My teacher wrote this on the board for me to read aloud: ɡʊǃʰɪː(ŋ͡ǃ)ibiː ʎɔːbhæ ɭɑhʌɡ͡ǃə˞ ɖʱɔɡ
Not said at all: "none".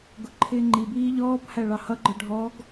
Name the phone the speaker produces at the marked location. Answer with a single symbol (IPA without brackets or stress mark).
ŋ͡ǃ